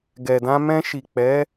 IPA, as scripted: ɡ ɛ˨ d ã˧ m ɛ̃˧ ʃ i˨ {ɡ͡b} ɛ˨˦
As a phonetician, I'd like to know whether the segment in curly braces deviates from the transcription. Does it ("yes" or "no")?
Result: yes